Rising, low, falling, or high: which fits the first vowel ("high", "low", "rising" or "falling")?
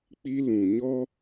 high